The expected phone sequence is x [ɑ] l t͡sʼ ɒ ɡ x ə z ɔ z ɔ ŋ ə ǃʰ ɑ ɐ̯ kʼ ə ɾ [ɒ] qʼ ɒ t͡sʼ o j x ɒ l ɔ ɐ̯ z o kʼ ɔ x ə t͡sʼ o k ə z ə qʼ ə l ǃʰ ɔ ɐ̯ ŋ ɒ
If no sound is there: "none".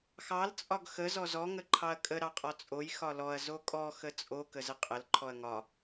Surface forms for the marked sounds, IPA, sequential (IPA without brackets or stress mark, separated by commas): ɑ, ɑ